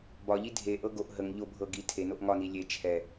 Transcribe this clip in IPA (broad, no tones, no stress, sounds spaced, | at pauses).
b ɒ ʎ i dʱ e ʔ ɤ ɡ o ʔ ɦ ə ŋ ʎ o bʱ ɤ ɡ i tʰ e n o ʔ ŋ ɒ n i lʲ e t͡ʃʰ ɛ